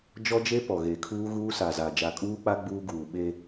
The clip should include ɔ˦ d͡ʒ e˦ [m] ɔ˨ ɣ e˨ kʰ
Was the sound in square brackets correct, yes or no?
no